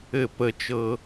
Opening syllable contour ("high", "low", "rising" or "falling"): falling